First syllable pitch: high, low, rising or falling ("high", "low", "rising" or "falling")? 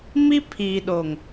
high